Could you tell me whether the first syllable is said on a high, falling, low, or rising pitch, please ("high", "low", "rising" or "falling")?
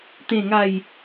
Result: falling